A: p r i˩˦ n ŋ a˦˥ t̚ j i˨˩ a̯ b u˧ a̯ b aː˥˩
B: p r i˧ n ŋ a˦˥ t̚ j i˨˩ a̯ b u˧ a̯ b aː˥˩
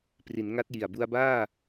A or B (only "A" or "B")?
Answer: A